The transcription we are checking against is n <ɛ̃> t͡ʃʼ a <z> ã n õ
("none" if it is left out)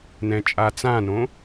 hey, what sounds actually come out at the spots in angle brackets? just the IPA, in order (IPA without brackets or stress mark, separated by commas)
ɛ̃, t͡s